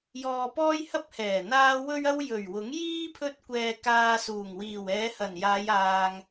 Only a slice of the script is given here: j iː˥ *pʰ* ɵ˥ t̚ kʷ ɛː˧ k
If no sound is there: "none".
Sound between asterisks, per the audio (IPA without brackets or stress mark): pʰ